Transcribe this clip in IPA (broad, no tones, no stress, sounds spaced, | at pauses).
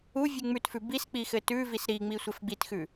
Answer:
u vʲ ʉ ŋ͡m ʉ t f ʉ b i s k͡p i x ɘ t ʉ v i s ɾ i ŋ͡m i sʷ ɘ f ɡ͡b i t x ʉ